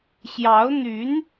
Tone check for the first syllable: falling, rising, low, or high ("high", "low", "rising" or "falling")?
rising